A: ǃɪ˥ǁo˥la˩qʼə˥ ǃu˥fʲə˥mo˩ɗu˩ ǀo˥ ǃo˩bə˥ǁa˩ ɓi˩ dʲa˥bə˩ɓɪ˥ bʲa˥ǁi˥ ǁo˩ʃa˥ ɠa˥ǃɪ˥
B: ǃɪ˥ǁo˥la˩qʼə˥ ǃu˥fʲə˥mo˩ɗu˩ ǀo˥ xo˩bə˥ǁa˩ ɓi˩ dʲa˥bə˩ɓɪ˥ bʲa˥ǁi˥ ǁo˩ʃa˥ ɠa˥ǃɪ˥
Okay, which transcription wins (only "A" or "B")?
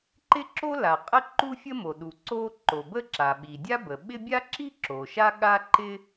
A